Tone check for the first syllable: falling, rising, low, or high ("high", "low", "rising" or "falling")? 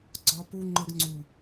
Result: high